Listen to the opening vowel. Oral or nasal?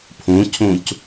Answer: nasal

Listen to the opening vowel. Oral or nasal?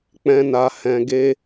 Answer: nasal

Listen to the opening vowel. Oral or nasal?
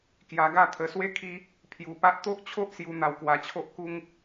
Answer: oral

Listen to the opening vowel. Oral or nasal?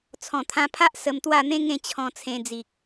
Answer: nasal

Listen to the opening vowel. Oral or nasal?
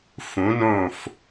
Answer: nasal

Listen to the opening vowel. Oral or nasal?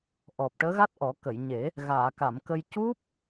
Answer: oral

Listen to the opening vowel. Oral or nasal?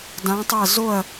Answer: nasal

